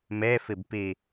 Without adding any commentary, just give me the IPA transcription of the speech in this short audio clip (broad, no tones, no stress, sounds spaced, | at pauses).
m e f i b p i